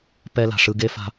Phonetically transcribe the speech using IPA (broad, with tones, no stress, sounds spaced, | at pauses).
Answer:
p ɛ˦ l a̤˨ ʂ ɯ˧ ɡ e˦ f a̤˧